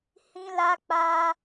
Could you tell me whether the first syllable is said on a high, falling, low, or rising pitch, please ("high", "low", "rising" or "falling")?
high